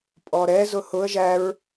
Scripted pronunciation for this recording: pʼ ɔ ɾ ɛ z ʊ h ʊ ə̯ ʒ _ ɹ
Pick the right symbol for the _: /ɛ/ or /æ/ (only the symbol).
æ